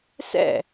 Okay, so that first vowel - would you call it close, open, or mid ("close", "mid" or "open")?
mid